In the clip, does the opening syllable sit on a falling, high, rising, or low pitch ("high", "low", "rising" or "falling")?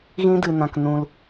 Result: high